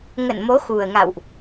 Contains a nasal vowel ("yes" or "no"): no